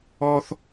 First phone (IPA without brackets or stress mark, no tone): ɔ